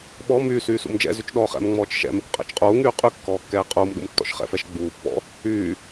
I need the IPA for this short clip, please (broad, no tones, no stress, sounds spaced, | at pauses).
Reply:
ɓ ɔ m yː s yː s ṵ m d͡ʒ ɛ̰ z y t͡ʃ ɗ ɔː χ ɛ̰ m ŋ͡m ɔː t͡ʃ ʃ ɛ̰ m ɛ kʷ qʼ ɛ̰ t͡ʃ qʼ uː ŋ yː qʼ y kː ɔː kː ɛː qʼ uː m ɗ ṵ m tː ɔ̰ ʃ χ ɛ̰ f ɛ ʃ ɡ͡b uː pː ɔ̰ | yː